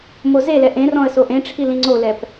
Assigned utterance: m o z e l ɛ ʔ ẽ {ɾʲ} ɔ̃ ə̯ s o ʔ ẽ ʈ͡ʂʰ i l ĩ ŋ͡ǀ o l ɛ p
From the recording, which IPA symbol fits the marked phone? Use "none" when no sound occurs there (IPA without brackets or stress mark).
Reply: r